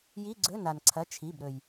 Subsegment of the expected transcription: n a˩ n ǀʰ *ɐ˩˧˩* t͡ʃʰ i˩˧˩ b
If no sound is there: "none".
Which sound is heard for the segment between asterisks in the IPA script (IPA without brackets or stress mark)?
ɐ˩˧˩